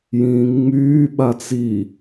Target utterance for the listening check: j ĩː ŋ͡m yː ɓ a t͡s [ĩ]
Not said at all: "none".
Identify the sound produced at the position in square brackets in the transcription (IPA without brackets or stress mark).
i